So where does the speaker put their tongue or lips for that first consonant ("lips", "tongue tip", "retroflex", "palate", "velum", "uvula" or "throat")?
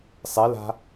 tongue tip